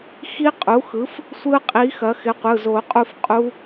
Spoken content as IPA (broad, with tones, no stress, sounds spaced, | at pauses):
x i˦˥ qʼ u˩˥ x ɯ˩˥ f | sʷ ɯ˦˥ qʼ i˩˥ x ɐ˩˥ x ɪ˩˥ qʷ ɯ˩˧˩ z o˨˩˦ qʼ u˦˨ f qʼ u˦˥